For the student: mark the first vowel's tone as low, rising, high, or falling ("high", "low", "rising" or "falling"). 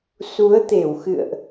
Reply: rising